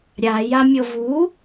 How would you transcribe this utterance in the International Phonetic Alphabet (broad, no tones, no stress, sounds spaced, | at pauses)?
ɾʲ a j a mʲ ɤ v u